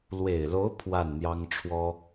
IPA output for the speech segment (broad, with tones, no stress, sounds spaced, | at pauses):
l w e˨˩ ɪ̯ l o˧˥ ʊ̯ pʰ w a˥˩ n n̪ j ɑ˥ ŋ ʈ͡ʂʰ w ɔ˥